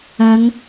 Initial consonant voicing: voiced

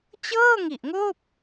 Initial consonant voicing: voiceless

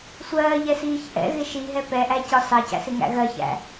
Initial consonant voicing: voiceless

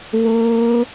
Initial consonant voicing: voiced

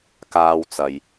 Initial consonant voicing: voiceless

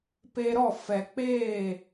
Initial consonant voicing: voiceless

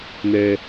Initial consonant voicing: voiced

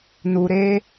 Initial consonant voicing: voiced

